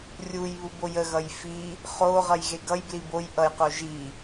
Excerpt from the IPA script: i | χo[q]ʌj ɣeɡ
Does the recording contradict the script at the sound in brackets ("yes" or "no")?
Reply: yes